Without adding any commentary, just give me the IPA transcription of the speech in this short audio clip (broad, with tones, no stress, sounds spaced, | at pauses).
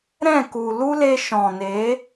ɾ ɛ̃˦˨ k u˨ l u˦ l e˧ ʃ ɔ̃˨ n e˨˦